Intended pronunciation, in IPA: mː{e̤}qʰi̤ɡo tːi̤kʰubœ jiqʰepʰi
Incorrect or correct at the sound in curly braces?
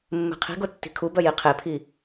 correct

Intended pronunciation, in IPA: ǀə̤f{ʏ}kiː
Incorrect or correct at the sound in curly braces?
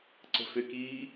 correct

